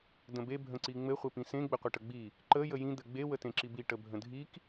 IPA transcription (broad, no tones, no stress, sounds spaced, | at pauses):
d ə̃ b e bʱ ə̃ ǀ i ŋ͡m ɘ χʷ e p ĩ s ẽ ɡ͡b ɘ qʷ e ʈ ə ɡ͡b i | ǃ ə j ə j ĩ d̪ ɘ ɡ͡b e w ə t ẽ ǁ i b i ʈ ə bʱ ə̃ dʱ i k